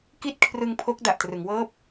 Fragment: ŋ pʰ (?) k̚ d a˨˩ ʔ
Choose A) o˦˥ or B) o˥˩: A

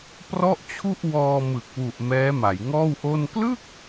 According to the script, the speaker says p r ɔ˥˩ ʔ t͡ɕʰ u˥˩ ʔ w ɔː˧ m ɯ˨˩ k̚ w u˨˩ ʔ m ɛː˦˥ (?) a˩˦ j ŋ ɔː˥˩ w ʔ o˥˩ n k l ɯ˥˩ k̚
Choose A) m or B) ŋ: A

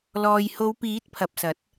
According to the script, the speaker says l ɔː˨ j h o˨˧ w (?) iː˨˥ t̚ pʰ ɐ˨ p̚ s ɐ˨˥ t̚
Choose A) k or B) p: B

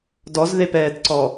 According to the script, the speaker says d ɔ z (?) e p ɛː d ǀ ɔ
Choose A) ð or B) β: A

